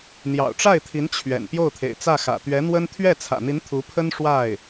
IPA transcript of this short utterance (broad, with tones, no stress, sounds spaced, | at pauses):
n̪ j ɑ̰˨˩ ʊ̯ ʈ͡ʂ a˥˩ ɪ̯ t̪ʰ i˧˥ n t͡ɕʰ ɥ ɛ̰˨˩ n p j o˥˩ ʊ̯ t̪ʰ ḛ˨˩ ɪ̯ t͡s ä˥˩ x ä̰˨˩ t̪ ɥ ɛ˧˥ n̪ w ə˥ n t̪ʰ ɥ ɛ˥˩ t͡sʰ ä̰˨˩ n̪ i˧˥ n t̪ʰ u˧˥ pʰ ə˥ n ʂ w a˥˩ ɪ̯